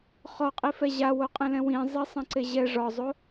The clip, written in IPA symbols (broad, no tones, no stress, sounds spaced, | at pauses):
χ ɔ qʼ i f ɛ ʑ a w o qʼ ẽ l ɛ̃ w ĩ zˤ i sˤ ɛ̃ ǀ e ʑ ɛ ʐ ɒ zˤ o